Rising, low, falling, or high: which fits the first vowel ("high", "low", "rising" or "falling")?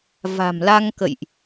low